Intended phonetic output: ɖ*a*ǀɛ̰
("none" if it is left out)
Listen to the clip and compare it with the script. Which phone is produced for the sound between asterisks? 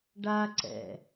a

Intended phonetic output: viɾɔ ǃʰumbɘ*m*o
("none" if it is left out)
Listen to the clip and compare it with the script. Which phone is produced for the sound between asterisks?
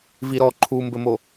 m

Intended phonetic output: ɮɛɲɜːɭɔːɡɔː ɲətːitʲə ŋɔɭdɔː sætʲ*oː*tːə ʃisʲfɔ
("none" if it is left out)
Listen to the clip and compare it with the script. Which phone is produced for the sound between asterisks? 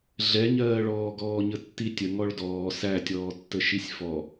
ɔː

